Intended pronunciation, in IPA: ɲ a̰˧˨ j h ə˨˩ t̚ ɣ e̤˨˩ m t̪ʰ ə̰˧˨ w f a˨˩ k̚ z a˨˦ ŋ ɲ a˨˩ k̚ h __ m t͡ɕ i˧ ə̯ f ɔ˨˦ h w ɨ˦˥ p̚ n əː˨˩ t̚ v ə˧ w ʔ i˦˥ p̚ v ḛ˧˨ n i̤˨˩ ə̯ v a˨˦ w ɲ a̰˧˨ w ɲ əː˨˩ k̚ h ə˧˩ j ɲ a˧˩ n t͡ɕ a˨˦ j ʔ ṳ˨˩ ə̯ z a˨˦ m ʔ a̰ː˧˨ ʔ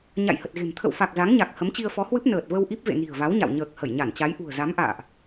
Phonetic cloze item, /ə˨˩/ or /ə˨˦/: ə˨˦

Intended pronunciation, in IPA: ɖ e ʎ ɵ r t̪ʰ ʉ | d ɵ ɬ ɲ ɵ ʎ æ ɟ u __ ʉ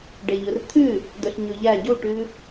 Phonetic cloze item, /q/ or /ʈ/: ʈ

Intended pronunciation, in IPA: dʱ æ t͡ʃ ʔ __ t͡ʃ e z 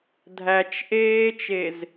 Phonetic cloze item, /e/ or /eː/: eː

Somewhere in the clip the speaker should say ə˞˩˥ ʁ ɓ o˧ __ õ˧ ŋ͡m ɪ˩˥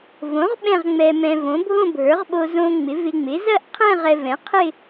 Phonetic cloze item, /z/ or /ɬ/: z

